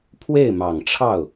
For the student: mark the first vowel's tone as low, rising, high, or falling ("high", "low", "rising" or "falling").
falling